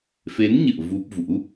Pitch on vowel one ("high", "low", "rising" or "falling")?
rising